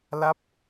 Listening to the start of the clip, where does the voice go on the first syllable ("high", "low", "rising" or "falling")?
falling